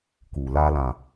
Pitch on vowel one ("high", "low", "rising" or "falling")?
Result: low